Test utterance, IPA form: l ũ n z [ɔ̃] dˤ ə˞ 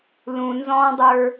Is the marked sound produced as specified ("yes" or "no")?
yes